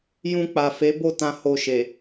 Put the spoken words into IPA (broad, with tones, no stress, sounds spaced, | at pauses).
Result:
j ũ˧ k͡p a˨ f e˨˦ b o˦˨ t ã˧ h o˧ ʃ e˨